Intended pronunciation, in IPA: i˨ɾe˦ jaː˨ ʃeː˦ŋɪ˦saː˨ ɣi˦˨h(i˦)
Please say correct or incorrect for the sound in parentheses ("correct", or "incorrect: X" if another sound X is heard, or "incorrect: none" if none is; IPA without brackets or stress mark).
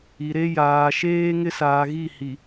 incorrect: i˨